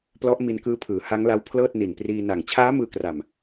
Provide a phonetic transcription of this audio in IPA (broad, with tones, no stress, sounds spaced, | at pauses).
p l ɔ˦˥ ʔ m i˧ n k ɯː˦˥ pʰ ɯː˩˦ h a˦˥ ŋ l a˦˥ w pʰ l ɤː˥˩ t̚ n i˨˩ n p r iː˧ n a˨˩ ŋ t͡ɕʰ aː˦˥ m ɯː˧ k r a˨˩ m